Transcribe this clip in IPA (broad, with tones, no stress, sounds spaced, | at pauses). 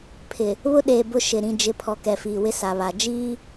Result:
pʰ ɪ˨ | β ʊ˦ ɗ eː˨ b ʊ˦ ʃ ɪ˨ ɾ ĩ˦ d͡ʒ ɪ˦ pʰ ɔ˨ k ɛ˨ f iː˨ w ɪ˦ s a˨ β a˨ d͡ʒ iː˦